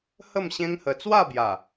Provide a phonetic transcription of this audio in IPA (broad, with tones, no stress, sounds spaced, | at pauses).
h ə˥˧ m ɕ ẽ˦ ŋ h ə˧ t͡s w a˥˧ b j a˨˩